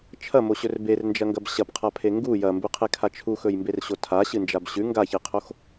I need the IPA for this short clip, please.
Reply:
t͡ʃʰ ɐ m o ɕ ɵ r b e r n d͡ʒ ɐ ŋ ɡ ɐ b ɕ ɐ p qʰ a pʰ e ŋ ɡ u j ɐ m b ʉ qʰ e kʰ a t͡ʃʰ u x ɵ j m b e r ɕ o tʰ a ɕ ɨ n d͡ʒ a b ɕ ʉ ŋ ɡ a ç i qʰ o x

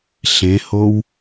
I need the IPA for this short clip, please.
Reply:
ɬ ẽ h o w

